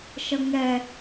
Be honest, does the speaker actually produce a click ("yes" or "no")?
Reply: no